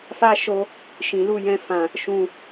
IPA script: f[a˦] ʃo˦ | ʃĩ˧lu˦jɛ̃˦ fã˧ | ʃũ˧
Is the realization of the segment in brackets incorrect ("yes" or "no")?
no